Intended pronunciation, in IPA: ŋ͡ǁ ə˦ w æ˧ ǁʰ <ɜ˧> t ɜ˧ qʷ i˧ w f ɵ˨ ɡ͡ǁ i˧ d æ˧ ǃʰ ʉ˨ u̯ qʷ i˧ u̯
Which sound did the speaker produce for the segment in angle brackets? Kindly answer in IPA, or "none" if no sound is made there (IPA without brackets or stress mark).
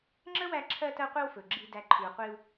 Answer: ɜ˧